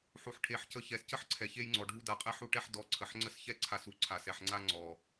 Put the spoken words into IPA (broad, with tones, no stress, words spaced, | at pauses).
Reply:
ħu˨ħʈʰe˨ħcə˨˦ çɛ˨scə˦ħ ǀʰɛ˨çe˧jŋ͡ǀɔ˨ ɖʱu˧da˨qʼɛ˧ħu˧ ʈɛ˧ħdɔ˨˦ ǀʰə˨ħŋ͡ǀə˦˨sçɛ˦ ǀʰa˧su˨ ǀʰa˨sɛ˨ħŋ͡ǀa˧ ŋ͡ǀɔ˨